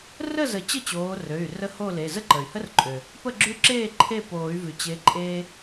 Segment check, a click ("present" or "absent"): present